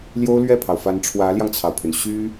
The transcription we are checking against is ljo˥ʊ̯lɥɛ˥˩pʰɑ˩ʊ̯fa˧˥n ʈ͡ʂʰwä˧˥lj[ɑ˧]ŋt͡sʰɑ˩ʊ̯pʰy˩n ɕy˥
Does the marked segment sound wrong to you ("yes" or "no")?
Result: no